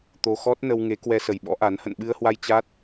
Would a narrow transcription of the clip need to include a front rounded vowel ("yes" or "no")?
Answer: no